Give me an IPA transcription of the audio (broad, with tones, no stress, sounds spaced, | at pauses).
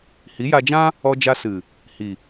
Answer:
h i˨˦ j a˧ d͡ʒ ã˦ | ɔ˧ d͡ʒ a˧ s ɨ˨ | h i˨